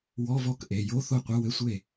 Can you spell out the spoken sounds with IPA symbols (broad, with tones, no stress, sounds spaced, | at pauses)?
w ɔ˧˥˧ v ɔ˥˩ k ʔ e˩˧˩ j o˧˥˧ θ o˥˩ qʷ e˧˥˧ w ɘ˧˥˧ sʷ e˥˩